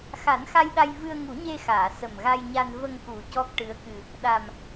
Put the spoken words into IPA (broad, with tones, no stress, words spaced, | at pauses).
xa˨˩˦nxa˧jɗa˧j vɨ˧ə̯ŋu˨˩˦ɲe˧xaː˨˩˨ sə˨˩mɣa˧jɲa˧n və˧ŋku˨˩ cɔ˦˥k̚ʈɨ˧˥ə̯kɨ˧ | ɗa˨˩m